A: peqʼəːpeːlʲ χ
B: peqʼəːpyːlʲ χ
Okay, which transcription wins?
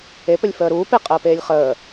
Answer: A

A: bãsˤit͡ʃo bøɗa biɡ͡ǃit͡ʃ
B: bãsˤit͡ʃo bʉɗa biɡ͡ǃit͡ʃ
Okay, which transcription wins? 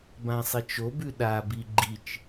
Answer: B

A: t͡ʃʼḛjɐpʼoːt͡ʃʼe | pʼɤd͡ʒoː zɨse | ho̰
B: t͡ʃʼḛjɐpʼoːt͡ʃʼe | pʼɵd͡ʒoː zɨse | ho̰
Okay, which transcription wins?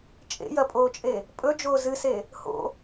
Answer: B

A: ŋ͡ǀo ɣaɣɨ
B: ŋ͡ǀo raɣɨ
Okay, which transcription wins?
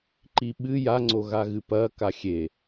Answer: A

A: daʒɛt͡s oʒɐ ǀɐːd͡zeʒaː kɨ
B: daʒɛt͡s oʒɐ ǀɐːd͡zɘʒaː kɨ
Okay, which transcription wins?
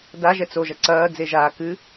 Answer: A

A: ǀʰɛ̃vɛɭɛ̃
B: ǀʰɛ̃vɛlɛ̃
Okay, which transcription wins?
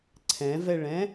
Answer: A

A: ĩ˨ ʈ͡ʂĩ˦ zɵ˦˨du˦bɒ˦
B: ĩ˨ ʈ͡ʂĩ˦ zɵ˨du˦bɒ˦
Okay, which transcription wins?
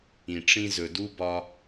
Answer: B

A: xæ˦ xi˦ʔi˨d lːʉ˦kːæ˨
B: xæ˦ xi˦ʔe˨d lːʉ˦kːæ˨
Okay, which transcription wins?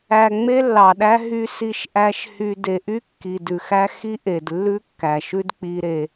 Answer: B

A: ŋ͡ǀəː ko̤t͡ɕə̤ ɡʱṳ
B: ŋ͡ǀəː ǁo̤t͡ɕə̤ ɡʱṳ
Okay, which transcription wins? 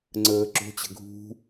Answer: B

